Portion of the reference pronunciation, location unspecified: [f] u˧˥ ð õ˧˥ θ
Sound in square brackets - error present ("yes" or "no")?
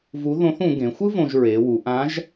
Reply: yes